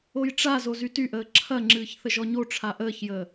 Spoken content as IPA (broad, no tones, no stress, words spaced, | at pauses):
ojʈ͡ʂa zozytyʔəː ǁʰɐ ŋ͡ǁɨːçθəʒɔɲo ʈ͡ʂʰaʔəːçjəː